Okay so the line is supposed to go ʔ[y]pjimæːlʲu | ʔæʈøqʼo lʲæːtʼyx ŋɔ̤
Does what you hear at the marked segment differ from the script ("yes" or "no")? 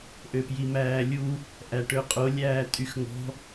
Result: yes